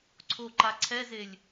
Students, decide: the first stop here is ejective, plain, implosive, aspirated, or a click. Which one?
click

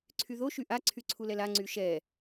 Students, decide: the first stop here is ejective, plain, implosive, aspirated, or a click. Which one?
click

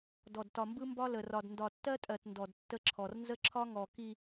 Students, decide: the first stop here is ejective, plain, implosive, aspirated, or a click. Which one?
plain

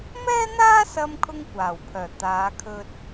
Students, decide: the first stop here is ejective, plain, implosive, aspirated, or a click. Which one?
aspirated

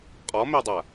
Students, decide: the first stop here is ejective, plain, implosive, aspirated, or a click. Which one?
ejective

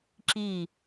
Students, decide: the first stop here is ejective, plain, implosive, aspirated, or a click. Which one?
click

